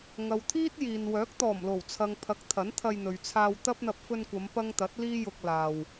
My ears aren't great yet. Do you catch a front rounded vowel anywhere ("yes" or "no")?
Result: yes